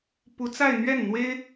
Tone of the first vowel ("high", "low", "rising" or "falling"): rising